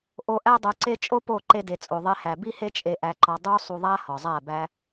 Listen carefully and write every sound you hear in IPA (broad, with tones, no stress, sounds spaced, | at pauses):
ʔ o˧ ʔ æ˦ dˤ o˧ ǀ e˦ t͡ʃʼ o˦ p o˦˨ ǃ e˧ d e˨ t͡sʼ o˨ ðˤ e˦ h æ˨ b i˦ h e˦ t͡ʃʼ e˧ ʔ æ˧ ǃ ɒ˧ dˤ u˦ sˤ u˧ ðˤ æ˦ h ɒ˨ zˤ æ˦˨ b æ˧